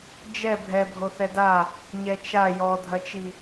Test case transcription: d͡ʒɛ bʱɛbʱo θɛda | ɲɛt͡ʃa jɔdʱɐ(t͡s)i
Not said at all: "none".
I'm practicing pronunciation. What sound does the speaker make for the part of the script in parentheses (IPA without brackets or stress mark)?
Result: t͡ʃ